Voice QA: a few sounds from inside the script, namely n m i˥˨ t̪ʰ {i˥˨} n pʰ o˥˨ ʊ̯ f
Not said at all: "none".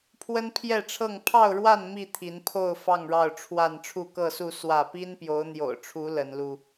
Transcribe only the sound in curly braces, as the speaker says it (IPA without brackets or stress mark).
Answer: i˨˦